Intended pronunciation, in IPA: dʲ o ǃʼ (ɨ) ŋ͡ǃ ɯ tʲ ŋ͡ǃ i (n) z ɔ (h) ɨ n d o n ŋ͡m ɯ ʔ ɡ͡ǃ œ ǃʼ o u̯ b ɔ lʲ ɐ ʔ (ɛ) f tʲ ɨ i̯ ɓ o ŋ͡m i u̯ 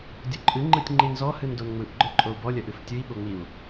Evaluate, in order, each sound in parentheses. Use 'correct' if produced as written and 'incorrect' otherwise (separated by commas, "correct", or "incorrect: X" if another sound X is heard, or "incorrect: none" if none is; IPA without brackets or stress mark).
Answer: correct, correct, correct, incorrect: ɨ